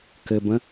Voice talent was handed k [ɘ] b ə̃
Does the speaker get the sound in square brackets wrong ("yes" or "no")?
no